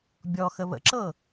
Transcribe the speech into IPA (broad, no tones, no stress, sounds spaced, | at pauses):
bʲ ɔ x ə β ə̰ ǁ ɤ